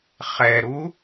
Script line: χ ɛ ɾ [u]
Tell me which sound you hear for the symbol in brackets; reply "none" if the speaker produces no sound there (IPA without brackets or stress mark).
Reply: u